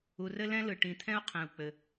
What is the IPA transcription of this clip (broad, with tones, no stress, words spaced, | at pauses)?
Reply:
u˨rɘ˦lɛ̃˦ lɯ˨ʈĩ˨t̪ʰɛ̃˦u̯ qʰɛ̃˨u̯k͡pɘ˨